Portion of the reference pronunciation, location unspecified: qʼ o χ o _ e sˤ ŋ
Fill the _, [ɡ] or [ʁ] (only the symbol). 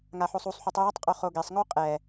ɡ